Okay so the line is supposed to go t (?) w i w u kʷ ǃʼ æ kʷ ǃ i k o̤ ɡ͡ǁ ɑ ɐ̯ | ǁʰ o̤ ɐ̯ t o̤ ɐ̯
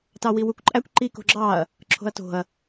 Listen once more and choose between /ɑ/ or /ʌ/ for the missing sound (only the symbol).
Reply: ɑ